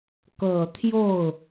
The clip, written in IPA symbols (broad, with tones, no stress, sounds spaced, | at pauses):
k ɤ˨˩ t̪ʰ j o˥˩ ʊ̯